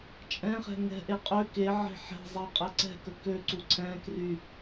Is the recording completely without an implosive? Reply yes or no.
yes